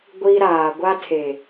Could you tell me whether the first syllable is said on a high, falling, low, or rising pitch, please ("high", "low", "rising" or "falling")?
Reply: high